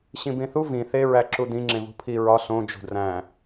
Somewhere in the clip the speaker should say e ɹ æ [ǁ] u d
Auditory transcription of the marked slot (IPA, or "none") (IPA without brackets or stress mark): ǁ